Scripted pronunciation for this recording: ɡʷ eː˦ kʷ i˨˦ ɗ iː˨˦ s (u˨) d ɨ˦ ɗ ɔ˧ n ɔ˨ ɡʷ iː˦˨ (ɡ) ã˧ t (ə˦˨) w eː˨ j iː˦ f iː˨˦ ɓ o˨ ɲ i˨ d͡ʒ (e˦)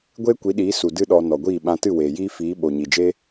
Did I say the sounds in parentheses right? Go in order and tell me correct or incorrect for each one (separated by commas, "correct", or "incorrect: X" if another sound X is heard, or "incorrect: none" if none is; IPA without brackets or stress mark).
correct, incorrect: ɓ, incorrect: ɨ˦˨, correct